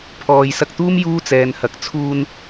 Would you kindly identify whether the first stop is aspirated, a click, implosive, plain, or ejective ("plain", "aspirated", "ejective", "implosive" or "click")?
aspirated